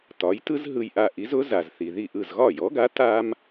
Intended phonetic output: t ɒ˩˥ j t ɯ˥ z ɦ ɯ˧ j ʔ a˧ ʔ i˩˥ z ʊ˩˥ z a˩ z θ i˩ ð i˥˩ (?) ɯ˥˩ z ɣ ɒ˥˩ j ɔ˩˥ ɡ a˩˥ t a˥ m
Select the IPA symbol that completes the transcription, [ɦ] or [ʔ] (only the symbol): ʔ